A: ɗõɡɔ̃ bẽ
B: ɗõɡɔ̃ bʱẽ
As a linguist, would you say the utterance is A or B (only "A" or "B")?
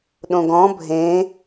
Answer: B